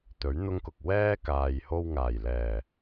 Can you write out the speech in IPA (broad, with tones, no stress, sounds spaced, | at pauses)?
t̪ ɵ˨˥ ɥ n̪ ʊ˥ ŋ k ʊ˨ k̚ w ɛː˥ k aː˨ j h o˧ w ŋ aː˨˩ j l ɛː˨˩